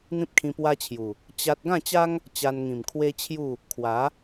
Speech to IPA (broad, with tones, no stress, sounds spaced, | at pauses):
n̪ ĩ˦ p̚ kʰ ĩ˧ p w a˦ t͡ɕʰ j u˨˩ | t͡ɕ a˦ t̚ ɡ ã˥˧ t͡ɕ a˦ ŋ | t͡ɕ a˧ n ŋ ĩ˨˩ m kʰ w e˦ t͡ɕʰ j u˥˧ | kʰ w a˨˦